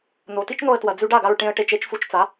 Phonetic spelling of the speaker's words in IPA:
n̪ o˩ t i˥ t͡ʃ n̪ o˧ ə̯ t w ɐ˩ d͡z ʉ˧ ɖ a˥˩ ɡ a˧ ɹ ʈ ẽ˧ ə̯ ʈ e˧ t͡ʃ e˩˥ t͡ʃ f u˧ t͡ʃ t͡s a˩˥

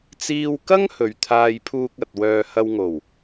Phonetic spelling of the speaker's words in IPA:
t͡s iː˥ w k ɐ˥ ŋ h ɵ˨ ɥ t̪ʰ aː˧ j pʰ uː˧ k̚ ɐ˨ t̚ w œː˧ h ɐ˧ w ŋ o˨˩ w

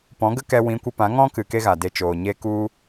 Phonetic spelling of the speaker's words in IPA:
p ɔ̃˨˦ ɡ ə˦ k ɛ˧ w ĩ˨˦ kʷ ə˧ p ã˨˦ ŋ ɔ̃˦ k ɨ˨ k e˦ ɣ a˨ d e˧ t͡ʃ oː˨ ɲ e˧ k u˧

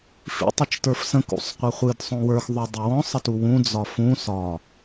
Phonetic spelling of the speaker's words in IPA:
f ḭ tˤ ɨ t͡ʃ t ə˞ f s ə̃ k ṵ sˤ qʷ ə χʷ ɨ d sˤ õ w ə˞ x ðˤ o dˤ ə w ɔ̃ sˤ ə t u w ũ d͡z ɒ f ũ s ɒ

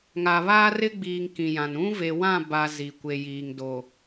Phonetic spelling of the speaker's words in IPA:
ŋ a˨ β aː˦ r ɪ˦ ɡ͡b iː˨ ŋ k ĩ˨ j ã˨ n ũ˦ v e˨ w ã˦˨ b a˨ z i˨ kʷ e˨ j iː˨ ŋ d o˨

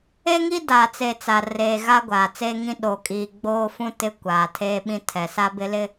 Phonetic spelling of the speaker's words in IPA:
e˦ ŋ i˦ d aː˨ t͡s e˨ t͡s a˨ r eː˨ ɣ a˦ ɡʷ aː˨ t͡s eː˦ ŋ ĩ˦ ɗ oː˨ kʼ iː˨ ɡ͡b oː˦ f ũ˦ t ɪ˦ kʷ aː˨ tʰ eː˦ ɓ ĩ˦ tʰ ɛ˨ s a˦ b ɪ˦ l ɪ˦

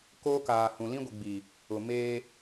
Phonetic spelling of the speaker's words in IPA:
k oː˦ k aː˨ h ũ˨ l ĩ˦ ɡʷ i˨ ɡ͡b i˨ | ʊ˨ m eː˦

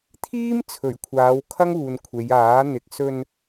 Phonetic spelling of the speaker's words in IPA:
t̪ʰ iː˥ m t͡sʰ ɵ˨˩ ɥ kʷʰ aː˨˧ w kʰ ɐ˥ ŋ uː˨ n kʷʰ e˨˧ j aː˨˥ n̪ ɪ˨ k̚ s ɵ˧ n

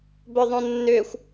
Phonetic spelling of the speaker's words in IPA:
b œ ðˤ õ nː ʏː xʷ

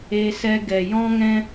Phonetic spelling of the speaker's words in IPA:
e˧ s ɛ˧ ɡ ɛ˨ j ɔ̃˦ ŋ ɛ̃˦

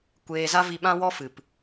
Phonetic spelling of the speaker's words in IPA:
kʷ eː˧ z a˦ v i˧ ɓ ã˦ w ɔ˦ f ɨ˨ p

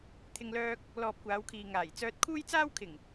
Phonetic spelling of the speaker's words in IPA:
t̪ʰ ɪ˧ ŋ l œː˧ k̚ | l ɔː˧ p̚ kʷ aː˨˧ w kʰ iː˨ ŋ aː˨˩ j t͡s œː˧ t̚ kʰ uː˥ j t͡s aː˥ w kʰ ɪ˨˩ ŋ

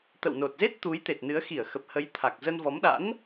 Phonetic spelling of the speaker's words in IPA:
t̪ ə̰˧˨ w n o˨˩ t̚ z e˦˥ t̚ t̪ u˨˦ j t̪ e˨˩ t̚ n ɨ˨˦ ə̯ x i˧˩ ə̯ x ə˨˩ p̚ h ə˨˦ j t̪ʰ a˨˩ k̚ z ə˧ n v ɔ˨˦ m ɗ a̰˧˥ n

